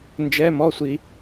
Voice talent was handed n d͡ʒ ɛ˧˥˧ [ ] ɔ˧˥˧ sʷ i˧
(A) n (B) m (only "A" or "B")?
B